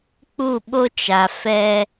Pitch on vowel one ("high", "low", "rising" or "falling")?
falling